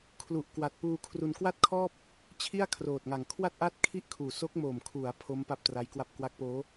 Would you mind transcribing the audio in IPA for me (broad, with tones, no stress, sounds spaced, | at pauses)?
kʰ l u˨˩ ʔ k w a˨˩ t̚ p uː˧ kʰ r u˧ n k w a˥˩ t̚ kʰ ɔː˥˩ p̚ | t͡ɕʰ i˥˩ a̯ kʰ r oː˨˩ t̚ ŋ a˨˩ ŋ kʰ w a˥˩ t̚ ʔ a˥˩ t̚ kʰ i˥˩ ʔ kʰ uː˨˩ s o˦˥ k̚ m o˨˩ m kʰ u˩˦ a̯ pʰ o˦˥ m p a˥˩ p̚ t r a˦˥ j k w a˥˩ p̚ k w a˦˥ k̚ p oː˦˥